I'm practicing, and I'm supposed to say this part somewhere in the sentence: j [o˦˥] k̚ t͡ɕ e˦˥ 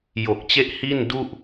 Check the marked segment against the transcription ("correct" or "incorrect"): incorrect